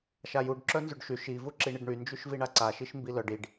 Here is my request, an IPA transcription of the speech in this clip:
ʃajuɖ ǁœnzyɖʃy ʃi vuǁiɳiɖɳy nd͡ʒyʃviɳaǀa ʃiʃmbilœɖ iɖ

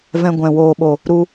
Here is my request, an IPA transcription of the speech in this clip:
vɛ̃˧ɡʷɛ̃˨ woː˨ɓo˨ | ɾu˧

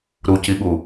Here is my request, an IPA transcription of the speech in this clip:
ɾuciɠu

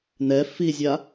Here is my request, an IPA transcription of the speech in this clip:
nɛ fizʲa

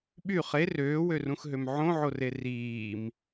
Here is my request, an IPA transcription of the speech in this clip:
ɓy χe røːwørũxɦøm ʕõʕore riːm

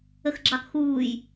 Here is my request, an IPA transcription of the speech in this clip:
əxɡ͡ǁɑkxuːj

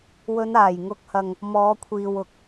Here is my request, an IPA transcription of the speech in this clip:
wɵ˨˧naː˨˩j ŋʊ˨˥k̚hɐ˨ŋ | mɔː˨˧kʷʰiː˨wʊ˨k̚

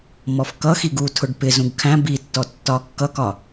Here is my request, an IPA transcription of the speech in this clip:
mɔfkʌxiɡ utʰʊɖ pɪzũɡ kʰæ̃ bitːɔ tːɒkːʌkɒ

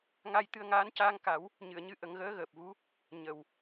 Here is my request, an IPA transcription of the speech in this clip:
ŋa˧jt̪ɨ˧ə̯ŋaː˧˥n caː˧ŋka˨˩˦w | ɲɨ˨˩˨ə̯ɲɨ˧ ʔə˨˩˦ŋɣəː˧˥ɣəː˨˩p̚vu˧˥ | ɲə˨˩˨w

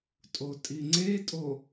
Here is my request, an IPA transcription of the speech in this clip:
tʼotʼiŋ͡ǀetʼo

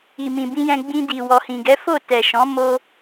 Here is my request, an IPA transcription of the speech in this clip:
i˨mĩ˨bĩ˧jɛ̃˧ ɡ͡bĩ˧di˨ wɔ˨hĩ˨ɡɛ˨˦fo˦˨ tɛ˨ʃɔ̃˨˦ mo˦

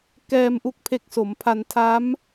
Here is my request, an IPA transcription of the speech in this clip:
kɛː˧m ʔu˥˩k̚pʰe˦˥k̚ so˩˦mpʰa˧ntʰa˦˥m

